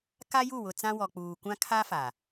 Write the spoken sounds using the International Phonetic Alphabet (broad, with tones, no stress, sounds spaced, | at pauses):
k a˦ j u˦˨ w ʊ˨ t͡s ã˦ w ɔ˨ k͡p uː˨ kʷ ã˦ kʰ a˦ f a˨